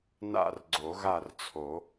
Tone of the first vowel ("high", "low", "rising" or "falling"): falling